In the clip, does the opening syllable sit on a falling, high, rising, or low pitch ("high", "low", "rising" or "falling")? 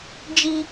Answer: high